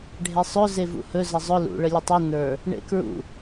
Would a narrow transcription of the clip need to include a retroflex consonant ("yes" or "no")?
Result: yes